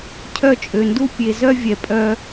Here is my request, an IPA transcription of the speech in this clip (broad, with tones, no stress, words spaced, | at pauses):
cʰœ˦˨t͡ʃʼø˨ndu˦ pʲe˨zœ˦ vʲɛ˨ pʼœ˦